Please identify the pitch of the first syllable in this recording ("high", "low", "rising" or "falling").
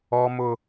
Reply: high